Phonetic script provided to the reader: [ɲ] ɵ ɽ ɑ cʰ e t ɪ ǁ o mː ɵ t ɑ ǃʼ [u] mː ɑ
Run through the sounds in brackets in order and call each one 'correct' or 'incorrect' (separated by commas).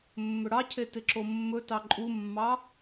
incorrect, correct